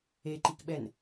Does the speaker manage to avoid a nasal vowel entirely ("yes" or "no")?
yes